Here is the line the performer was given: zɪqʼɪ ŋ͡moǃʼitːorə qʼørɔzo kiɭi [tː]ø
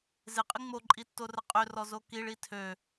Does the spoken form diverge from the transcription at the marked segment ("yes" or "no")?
yes